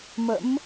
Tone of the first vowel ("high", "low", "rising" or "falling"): rising